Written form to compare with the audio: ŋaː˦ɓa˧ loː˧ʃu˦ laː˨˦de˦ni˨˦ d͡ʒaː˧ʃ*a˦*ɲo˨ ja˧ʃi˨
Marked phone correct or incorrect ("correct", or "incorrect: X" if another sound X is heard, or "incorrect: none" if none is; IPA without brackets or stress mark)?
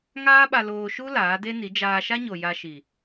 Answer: correct